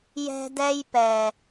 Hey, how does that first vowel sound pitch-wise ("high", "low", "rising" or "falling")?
high